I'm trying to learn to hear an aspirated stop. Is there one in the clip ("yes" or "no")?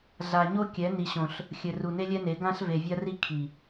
yes